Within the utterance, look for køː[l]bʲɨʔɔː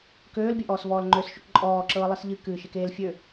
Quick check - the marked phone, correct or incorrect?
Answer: correct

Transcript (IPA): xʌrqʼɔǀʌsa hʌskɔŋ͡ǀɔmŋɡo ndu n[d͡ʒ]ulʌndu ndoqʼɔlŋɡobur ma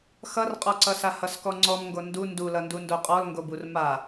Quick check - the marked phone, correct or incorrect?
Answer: incorrect: d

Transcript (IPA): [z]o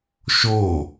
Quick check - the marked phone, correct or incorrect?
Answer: incorrect: ʃ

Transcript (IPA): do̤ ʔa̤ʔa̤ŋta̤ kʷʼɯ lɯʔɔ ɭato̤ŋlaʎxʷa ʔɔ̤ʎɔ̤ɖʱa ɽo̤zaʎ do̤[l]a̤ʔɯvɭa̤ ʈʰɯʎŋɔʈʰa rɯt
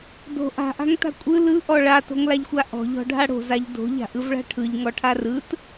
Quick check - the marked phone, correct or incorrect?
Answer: incorrect: ʎ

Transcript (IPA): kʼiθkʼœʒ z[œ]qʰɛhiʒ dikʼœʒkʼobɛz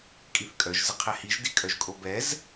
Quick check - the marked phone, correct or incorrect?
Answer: incorrect: ə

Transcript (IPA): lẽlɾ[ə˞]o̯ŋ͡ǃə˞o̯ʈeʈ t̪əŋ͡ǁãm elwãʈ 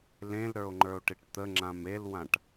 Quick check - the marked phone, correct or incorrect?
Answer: correct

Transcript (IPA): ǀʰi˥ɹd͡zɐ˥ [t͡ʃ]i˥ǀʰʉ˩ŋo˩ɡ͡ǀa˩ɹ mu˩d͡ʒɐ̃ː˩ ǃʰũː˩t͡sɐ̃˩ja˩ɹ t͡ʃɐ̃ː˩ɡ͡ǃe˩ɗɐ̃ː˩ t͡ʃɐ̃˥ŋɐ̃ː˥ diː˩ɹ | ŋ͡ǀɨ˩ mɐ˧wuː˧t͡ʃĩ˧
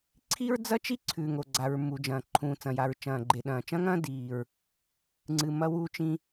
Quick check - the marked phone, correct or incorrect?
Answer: correct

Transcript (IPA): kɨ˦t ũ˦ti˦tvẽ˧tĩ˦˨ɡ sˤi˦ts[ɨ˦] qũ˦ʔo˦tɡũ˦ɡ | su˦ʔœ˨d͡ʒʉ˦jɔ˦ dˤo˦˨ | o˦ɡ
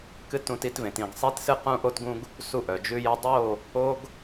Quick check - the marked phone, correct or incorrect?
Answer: correct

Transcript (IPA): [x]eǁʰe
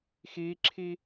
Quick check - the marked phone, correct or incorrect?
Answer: correct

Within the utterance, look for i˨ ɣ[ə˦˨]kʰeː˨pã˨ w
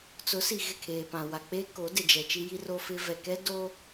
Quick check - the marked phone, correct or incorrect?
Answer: incorrect: ɪ˦˨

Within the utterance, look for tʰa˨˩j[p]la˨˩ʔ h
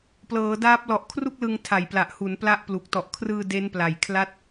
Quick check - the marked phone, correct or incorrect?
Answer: correct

